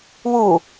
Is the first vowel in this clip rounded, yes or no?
yes